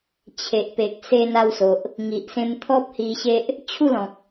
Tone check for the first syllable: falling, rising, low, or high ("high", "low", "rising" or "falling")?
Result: low